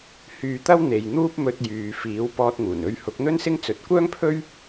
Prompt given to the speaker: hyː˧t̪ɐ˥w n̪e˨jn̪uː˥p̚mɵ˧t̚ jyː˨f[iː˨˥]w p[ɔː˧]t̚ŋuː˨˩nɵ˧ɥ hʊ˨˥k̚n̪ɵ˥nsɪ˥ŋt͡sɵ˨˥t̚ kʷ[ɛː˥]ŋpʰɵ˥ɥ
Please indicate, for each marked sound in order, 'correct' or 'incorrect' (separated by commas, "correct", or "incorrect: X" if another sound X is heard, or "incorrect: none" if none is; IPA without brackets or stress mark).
correct, correct, incorrect: œː˥